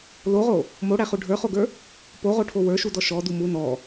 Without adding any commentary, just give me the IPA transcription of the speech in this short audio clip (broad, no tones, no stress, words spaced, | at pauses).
loʁo | moɽæχu ɖʱə˞χoɡə˞ | poʁoʈʰo wə˞ʃudɔ ʃɔdu mu nɔ